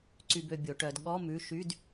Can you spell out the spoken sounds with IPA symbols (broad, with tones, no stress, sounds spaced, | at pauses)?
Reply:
ǀ y˧ b ø˧ bʲ o˩˧ ʈ œ˩˧ d ɠ ɔ˧˥˧ m ʉ˩˧˩ ʃ y˧˥˧ d